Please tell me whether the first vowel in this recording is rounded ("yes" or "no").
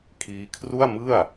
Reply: no